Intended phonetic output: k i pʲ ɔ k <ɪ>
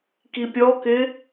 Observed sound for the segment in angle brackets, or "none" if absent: ɪ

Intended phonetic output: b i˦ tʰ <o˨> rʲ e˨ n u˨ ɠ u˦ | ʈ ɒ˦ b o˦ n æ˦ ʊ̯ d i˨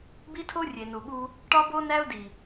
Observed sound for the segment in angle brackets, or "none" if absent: o˦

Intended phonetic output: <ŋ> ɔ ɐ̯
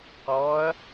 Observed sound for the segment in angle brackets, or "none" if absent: q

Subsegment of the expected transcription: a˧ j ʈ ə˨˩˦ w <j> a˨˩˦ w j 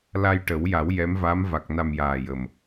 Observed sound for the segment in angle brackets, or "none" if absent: j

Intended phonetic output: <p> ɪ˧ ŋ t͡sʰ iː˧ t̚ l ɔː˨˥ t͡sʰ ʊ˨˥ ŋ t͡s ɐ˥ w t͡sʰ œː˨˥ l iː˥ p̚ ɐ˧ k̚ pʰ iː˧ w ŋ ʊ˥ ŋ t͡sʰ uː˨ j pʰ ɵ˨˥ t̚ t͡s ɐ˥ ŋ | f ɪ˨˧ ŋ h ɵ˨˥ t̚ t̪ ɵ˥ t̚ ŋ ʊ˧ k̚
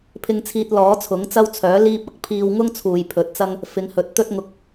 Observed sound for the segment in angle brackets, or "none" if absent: pʰ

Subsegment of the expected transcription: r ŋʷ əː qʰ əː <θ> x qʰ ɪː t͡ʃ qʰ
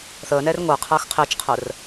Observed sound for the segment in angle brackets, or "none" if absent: none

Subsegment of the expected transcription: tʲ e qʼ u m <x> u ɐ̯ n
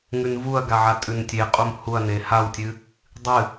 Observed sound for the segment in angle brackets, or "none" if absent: h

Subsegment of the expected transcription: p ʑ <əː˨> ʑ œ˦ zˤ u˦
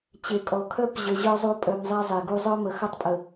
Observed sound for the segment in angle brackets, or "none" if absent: ə˨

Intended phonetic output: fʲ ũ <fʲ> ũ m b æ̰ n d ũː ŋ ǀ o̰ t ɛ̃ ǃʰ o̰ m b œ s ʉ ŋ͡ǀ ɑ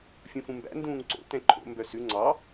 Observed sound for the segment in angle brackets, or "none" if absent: f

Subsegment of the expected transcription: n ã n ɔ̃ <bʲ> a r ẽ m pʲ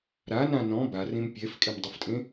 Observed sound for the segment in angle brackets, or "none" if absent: b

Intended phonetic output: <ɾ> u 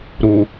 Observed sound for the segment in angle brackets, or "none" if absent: ɾ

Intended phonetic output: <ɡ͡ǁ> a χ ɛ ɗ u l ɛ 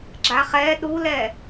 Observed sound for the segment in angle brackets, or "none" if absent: ɡ͡ǁ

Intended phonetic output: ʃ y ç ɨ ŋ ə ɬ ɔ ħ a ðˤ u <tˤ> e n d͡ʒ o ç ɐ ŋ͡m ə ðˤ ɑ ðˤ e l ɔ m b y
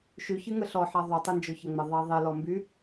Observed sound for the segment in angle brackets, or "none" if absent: tˤ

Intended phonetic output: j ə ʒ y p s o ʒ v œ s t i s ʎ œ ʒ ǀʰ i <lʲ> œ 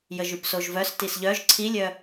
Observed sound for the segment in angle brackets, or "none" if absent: lʲ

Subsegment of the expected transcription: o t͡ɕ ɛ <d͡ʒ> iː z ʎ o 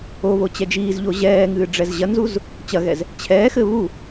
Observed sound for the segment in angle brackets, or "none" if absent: d͡ʒ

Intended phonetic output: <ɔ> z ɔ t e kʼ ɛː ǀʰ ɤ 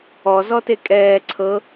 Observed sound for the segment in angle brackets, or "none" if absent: ɔ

